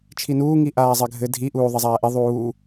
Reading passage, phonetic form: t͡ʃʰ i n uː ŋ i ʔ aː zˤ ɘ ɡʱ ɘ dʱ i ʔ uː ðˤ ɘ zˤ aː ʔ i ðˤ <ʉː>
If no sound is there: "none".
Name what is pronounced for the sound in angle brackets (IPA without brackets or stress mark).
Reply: uː